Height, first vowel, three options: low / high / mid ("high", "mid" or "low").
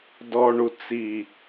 mid